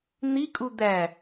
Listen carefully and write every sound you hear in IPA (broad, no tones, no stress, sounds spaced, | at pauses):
n̪ i kʼ u d̪ æ